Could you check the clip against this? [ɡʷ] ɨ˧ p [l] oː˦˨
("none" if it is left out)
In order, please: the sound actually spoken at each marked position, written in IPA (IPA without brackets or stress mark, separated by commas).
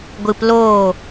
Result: ɡʷ, l